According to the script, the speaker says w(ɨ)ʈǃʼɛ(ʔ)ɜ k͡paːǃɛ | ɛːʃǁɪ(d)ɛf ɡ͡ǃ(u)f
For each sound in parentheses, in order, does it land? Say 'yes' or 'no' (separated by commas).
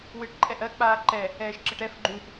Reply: yes, yes, no, no